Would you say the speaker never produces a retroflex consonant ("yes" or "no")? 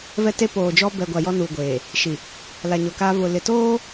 yes